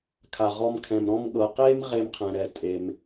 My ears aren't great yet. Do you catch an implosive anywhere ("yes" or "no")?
yes